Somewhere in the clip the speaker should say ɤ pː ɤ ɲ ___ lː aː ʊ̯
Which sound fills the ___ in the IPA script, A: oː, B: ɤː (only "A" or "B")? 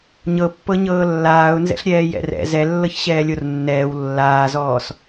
B